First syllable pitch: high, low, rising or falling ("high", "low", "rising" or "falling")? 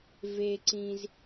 high